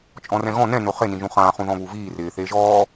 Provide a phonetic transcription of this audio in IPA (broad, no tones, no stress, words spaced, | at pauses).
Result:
t͡ʃʼɔ̃rɛ̃ɣɔ̃ nɛ̃ noχenĩʒũ χãːχũðɔ̃ βuviː rɪː θeːʒɔː